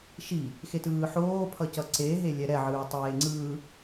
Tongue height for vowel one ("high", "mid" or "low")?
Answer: high